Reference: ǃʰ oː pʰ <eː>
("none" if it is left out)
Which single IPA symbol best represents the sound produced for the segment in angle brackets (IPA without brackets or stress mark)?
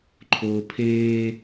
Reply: eː